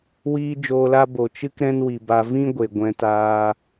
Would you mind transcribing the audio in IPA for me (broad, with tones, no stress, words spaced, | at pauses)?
wiː˧ d͡ʒoː˧la˦ bo˨t͡ʃɨ˦k ɾɛ̃˦nwi˨ba˧ vĩ˦ɡʷe˨ ɡʷɛ̃˧taː˧